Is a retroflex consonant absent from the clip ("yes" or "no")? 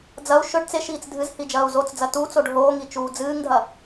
no